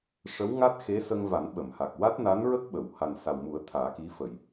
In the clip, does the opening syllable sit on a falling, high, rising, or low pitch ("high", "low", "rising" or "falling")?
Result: rising